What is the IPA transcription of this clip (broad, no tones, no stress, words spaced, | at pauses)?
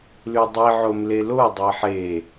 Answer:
lʉdˤiʕom lelo dˤeħe